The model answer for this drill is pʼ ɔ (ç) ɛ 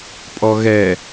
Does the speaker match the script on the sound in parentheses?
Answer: no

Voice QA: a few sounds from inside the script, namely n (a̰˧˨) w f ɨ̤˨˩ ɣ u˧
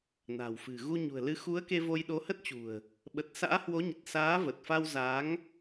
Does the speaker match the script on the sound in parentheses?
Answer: no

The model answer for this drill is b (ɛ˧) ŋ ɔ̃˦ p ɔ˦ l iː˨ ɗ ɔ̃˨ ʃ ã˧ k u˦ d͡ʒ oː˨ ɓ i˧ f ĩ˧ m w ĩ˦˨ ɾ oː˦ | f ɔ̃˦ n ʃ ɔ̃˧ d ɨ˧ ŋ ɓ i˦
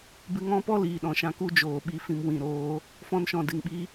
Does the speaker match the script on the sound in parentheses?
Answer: no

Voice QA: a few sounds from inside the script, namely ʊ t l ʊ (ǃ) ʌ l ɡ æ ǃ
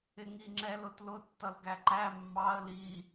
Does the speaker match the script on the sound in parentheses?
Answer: no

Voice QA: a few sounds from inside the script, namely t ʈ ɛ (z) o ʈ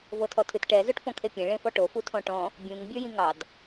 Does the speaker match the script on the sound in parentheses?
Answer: yes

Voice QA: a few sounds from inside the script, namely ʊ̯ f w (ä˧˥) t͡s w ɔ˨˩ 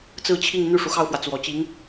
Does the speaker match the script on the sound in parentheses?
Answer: no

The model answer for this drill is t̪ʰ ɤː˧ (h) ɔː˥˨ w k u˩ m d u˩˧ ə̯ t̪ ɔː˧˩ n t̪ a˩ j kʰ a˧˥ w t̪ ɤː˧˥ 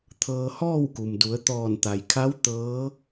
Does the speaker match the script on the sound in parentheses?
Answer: yes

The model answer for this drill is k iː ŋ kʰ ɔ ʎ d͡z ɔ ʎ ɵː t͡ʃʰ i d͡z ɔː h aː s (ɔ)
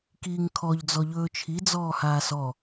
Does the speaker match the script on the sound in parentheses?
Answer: yes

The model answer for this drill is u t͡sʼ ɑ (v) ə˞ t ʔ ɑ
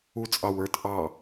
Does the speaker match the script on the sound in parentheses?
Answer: no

